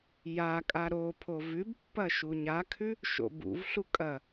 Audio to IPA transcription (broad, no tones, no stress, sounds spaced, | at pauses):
j a kʼ a ɾ o pʰ o v ʉ b pː ɐ ʃ u ɲ a kʰ ʉ | ʃ o̰ b ṵ v ɬ u kʼ ɐ